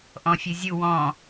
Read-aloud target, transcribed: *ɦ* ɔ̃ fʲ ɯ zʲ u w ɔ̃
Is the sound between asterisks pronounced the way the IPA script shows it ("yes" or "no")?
no